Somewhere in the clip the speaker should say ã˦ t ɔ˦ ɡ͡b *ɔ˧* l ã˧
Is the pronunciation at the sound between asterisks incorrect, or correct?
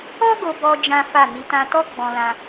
incorrect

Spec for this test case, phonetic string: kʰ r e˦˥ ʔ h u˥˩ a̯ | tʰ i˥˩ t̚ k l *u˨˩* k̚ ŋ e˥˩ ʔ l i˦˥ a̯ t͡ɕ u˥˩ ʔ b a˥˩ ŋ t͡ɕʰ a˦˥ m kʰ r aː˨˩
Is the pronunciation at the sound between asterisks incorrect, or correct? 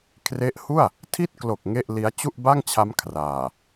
incorrect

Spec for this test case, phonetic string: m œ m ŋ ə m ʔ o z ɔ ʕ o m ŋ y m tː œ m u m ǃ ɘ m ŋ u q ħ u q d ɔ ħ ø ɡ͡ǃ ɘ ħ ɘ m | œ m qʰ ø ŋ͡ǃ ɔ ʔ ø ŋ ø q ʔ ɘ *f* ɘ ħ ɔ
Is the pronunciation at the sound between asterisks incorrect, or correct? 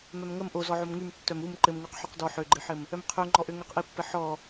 incorrect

